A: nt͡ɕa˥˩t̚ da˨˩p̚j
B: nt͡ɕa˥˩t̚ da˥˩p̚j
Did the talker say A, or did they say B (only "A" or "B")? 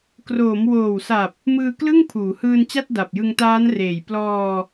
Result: A